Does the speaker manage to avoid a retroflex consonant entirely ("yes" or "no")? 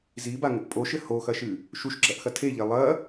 yes